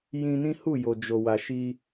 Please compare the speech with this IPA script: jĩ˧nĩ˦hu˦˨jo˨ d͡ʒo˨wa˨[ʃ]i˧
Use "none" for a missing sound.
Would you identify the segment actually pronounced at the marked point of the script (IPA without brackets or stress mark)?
ʃ